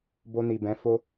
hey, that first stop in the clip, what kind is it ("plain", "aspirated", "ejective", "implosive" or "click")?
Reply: plain